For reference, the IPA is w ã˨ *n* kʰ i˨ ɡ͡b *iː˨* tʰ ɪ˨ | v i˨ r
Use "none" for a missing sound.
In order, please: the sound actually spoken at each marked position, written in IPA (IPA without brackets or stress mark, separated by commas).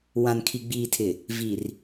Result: n, iː˨